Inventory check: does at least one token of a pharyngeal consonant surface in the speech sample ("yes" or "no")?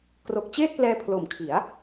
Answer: no